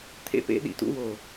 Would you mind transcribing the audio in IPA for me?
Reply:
t̪ʰ ḛ˧ p ḛ˧ ɗ ḭ˨ t ṵ˧ w o˨

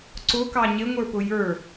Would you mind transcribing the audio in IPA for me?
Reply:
ǀ ʊ k ɑ ɲ ɪ ŋʷ ə˞ p ʊ j ə˞

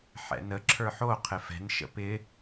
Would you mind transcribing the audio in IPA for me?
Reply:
ħ ɛ̰ n ə ǁʰ ə˞ ħ o qʰ ɪ f ɛ̤ n ʃ ə̰ p ɪ

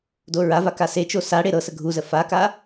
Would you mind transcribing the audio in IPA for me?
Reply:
d o ɹ a v a k a s e t͡ʃ o s a ɽ e ɾ ɤ s ə ɡʱ u z ə f a k a

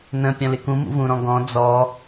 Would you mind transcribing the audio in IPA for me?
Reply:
n ə̃ pʲ ɔ̃ l ɪ k ũ m ṵ v ũ ɾ ɔ̃ ɡ ɔ̃ d͡z ɔ

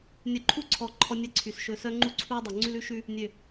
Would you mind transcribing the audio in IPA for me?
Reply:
nʲ œ˨ ǃʰ u˦˨ ǀʰ ɔ˨ ǃʰ ɔ˦ nʲ ɛ˦ ǀʰ y˨ s ʃ ɵː˨ s œ˦ ŋ͡ǃ u˦ ǀʰ uː˦ dˤ ø˨ ŋ͡ǀ ʉ˦ l ʉ˦ ʃ ʉ˦ | nʲ ø˨

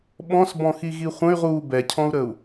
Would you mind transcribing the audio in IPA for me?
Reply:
ɓ ɔ̃ s b ɔ̃ x i ɣ i χʷ ə̃ y̯ ʁ uː b ɛ cʰ ɔ̃ u̯ ɾ ə u̯

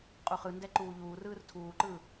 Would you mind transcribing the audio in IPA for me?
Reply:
qʼ u χ ɯ n d ɛ ǃ uː ʎ uː r ɯː r tʰ uː ǃ ɯː

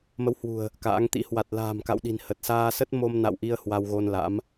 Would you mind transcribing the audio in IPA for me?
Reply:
m ə˨˦ w h w ṳ˨˩ ə̯ | k a̰ː˧˥ ŋ t̪ ḭ˧˥ h w a˨˩ t̚ l a̤ː˨˩ m k a̰˧˨ w ɗ i̤˨˩ n h ə˨˩ t̚ s aː˧ s ə˦˥ t̚ m o˧ m n a̰˧˨ w ʔ i˧ ə̯ h w a˧ w ɣ o˧ n l a̰˧˥ m

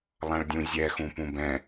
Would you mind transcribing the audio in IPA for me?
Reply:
lˠ ã ɭ dʲ ũ zʲ ɛ x ũ p ũ b ɛ̃

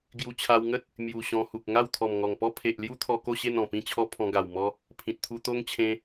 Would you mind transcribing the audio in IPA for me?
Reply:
ɡ j u˧ t͡ɕʰ a˧ w ŋ ə˦ t̚ | m j u˨˩ ɕ ɔ̃˧ h u˨ k̚ ŋ a˥˧ w t̪ʰ ɔ˨˩ m ŋ ɔ˨˩ ŋ p ɔ˦ pʰ e˨ ʔ l j u˦ t̪ʰ ɔ˧ k o˥˧ ɕ e˥˧ n ɔ̃˨˩ p ĩ˥˧ t͡ɕʰ ɔ˦ pʰ ɔ̃˧ ɡ a˨˩ w m ɔ˧ | pʰ ĩ˨ t̚ t̪ʰ u˧ t̪ o˦ ŋ t͡ɕʰ ẽ˧

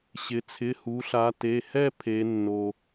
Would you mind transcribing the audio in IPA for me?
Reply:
ɕ ɪ˩˧ t͡sʰ ɪ˩˧˩ h u˩˧ ɬ a˩˧ t e˩˧˩ h ɛ˥˧ pʰ e˩˧ nː o˩

